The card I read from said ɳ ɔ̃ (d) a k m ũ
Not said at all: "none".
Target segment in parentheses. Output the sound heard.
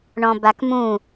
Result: b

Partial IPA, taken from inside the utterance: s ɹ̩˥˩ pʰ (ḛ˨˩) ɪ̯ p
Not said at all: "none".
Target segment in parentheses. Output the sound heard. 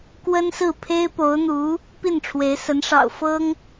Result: e˥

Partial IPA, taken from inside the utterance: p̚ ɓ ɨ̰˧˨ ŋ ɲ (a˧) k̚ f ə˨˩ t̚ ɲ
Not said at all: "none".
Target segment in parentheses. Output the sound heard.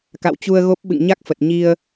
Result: a˦˥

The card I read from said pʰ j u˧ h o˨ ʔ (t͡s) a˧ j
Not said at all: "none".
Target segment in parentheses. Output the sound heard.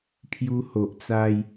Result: t͡s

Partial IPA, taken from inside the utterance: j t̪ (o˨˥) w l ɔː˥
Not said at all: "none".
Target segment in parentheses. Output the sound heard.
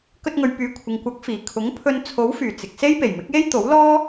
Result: o˨˥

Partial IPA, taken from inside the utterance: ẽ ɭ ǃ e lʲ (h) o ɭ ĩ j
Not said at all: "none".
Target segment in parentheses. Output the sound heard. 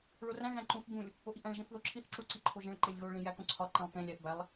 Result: ɣ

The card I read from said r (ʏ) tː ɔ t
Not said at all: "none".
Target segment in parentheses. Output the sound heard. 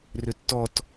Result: ʏ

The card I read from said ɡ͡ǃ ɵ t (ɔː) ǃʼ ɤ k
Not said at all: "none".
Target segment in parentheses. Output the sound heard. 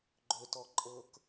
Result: ɔ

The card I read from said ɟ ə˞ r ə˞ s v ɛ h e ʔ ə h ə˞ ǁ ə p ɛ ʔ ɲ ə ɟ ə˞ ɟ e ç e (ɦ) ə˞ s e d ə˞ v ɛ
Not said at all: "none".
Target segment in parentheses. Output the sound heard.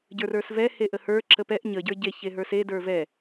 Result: ɦ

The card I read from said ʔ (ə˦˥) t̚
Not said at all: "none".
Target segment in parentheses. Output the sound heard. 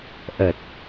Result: ə˨˩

